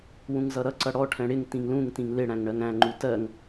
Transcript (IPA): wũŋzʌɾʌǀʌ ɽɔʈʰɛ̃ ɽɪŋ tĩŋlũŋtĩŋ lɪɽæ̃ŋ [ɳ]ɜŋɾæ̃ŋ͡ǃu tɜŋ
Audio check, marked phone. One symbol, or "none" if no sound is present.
ɳ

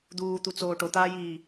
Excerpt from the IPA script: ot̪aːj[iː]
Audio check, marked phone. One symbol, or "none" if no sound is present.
iː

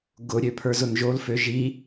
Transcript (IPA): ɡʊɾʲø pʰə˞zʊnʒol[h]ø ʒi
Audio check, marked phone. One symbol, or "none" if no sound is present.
f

